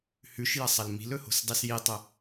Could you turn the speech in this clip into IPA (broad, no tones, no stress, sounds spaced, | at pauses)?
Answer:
h ʉ ʃ j ɐ sˤ ɐ l m i̤ l ɵ h o̤ s dˤ i s j i tˤ ɵ